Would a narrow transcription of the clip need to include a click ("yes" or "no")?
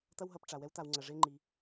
yes